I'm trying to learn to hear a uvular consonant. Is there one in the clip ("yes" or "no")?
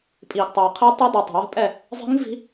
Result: yes